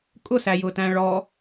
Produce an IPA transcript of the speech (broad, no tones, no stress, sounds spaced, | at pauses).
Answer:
kʼ ʊ s æ j ʊ t æ̃ ɭ ɔ